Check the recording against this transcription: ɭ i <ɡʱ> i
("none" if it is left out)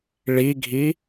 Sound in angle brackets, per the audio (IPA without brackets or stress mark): ɡʱ